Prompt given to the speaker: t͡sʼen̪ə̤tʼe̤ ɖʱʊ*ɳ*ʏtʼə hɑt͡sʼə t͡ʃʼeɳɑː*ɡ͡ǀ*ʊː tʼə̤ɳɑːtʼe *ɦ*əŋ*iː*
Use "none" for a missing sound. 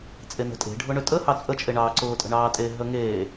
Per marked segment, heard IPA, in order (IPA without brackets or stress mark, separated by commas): ɳ, ǀ, ɦ, eː